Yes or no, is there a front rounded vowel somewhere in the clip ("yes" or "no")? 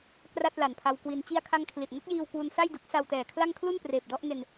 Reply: no